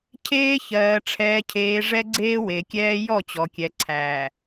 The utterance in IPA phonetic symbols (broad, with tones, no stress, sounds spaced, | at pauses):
cʰ eː˦ ç ɜː˨ ʈ͡ʂʰ ɛː˨ cʰ eː˨ ʐ ɛ˦ ɡ͡ǀ eː˦ w e˨ kʲ ɛː˦ j ɔ˦˨ t͡ɕ ɔ˨ kʲ ɛ˨ ǀʰ æː˨